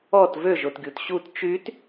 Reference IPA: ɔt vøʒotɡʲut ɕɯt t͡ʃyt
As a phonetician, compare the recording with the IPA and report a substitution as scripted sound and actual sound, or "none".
ɯ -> u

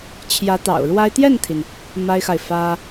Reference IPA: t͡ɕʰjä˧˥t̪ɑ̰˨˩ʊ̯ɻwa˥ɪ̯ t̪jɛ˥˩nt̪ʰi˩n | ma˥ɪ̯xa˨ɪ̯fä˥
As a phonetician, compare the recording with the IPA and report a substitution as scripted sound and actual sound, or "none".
none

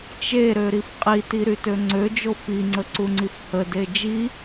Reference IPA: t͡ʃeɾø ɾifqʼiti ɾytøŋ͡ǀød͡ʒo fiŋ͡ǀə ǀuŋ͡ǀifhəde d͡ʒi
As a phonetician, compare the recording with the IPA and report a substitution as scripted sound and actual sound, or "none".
none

